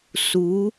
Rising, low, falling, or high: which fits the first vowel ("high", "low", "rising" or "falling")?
rising